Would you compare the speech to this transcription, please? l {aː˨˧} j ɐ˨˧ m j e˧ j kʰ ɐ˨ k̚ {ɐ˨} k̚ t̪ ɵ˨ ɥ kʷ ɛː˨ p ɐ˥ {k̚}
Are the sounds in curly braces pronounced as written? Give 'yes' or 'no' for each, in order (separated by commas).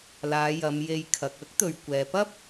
yes, no, no